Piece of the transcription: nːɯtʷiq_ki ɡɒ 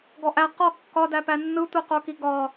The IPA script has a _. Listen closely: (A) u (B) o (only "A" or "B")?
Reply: B